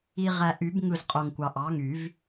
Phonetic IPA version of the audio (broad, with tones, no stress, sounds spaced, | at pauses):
i˨ ʁ æ˨ ʔ y˨˩˦ b ŋ ɯ˦˨ z qʼ o˨ ŋ kʷ ɑ˨ ʔ ɑ˩˥ ŋ y˨˩˦ v